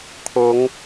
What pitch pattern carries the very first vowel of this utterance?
rising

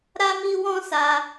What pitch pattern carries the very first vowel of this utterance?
high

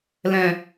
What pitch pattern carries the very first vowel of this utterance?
low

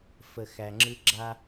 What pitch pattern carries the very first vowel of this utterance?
low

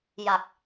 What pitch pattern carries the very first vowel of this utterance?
low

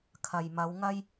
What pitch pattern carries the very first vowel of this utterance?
low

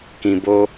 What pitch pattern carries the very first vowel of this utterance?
low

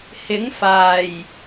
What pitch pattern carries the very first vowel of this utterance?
rising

